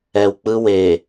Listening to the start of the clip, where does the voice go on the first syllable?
low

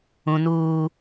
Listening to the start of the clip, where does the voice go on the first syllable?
high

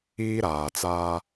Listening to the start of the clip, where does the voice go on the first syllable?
high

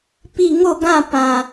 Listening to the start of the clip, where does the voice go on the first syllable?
falling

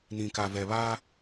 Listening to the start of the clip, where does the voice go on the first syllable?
low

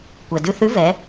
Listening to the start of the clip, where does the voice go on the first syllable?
low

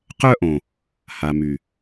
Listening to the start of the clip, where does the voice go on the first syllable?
high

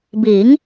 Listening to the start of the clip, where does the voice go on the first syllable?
rising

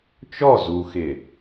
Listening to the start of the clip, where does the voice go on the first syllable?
falling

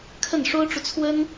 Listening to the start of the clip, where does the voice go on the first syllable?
falling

